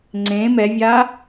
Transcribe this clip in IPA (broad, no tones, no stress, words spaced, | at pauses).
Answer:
ŋ͡ǀẽ mɛvʲa